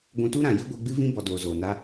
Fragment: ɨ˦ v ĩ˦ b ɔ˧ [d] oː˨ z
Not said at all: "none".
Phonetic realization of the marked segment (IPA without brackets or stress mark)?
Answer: d